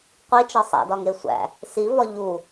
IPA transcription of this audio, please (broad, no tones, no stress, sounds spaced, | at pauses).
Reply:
qʷ i t͡ʃ ɒ sˤ æ̰ d ɒ ŋ e sʷ æ̰ | s i v ɒ ʎ u